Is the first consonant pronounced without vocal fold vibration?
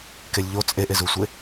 yes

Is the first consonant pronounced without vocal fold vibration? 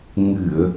no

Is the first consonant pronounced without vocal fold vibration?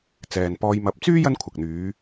yes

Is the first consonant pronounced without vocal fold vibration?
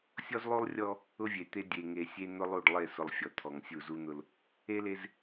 yes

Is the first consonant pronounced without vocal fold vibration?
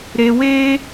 no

